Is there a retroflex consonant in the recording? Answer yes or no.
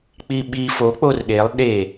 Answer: no